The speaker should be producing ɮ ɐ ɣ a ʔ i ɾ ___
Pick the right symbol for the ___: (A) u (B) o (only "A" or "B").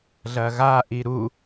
A